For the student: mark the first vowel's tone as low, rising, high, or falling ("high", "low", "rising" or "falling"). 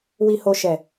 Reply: low